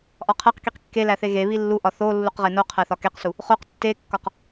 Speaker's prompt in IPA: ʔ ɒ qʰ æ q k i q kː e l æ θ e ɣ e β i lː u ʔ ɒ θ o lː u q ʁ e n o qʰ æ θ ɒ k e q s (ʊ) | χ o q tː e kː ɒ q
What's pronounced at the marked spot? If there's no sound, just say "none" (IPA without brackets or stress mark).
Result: u